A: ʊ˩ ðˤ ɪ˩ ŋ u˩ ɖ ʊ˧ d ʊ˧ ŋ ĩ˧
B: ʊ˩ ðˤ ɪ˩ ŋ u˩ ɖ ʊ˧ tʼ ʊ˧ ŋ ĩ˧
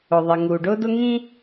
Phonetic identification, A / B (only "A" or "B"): A